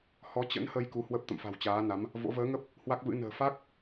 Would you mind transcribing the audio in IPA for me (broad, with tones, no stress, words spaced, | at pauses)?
hɔ˨˦t͡ɕə̰˧˥nhə˧j ku˨˦ hwə˦˥p̚t̪ə̰˧˨mfa̤˨˩wt͡ɕaː˨˦ na˨˦m | vo̰˧˥ vəː˨˦ŋə˦˥p̚ | hwa˦˥k̚vɨ̰˧˥ nə̤ː˨˩fa˦˥k̚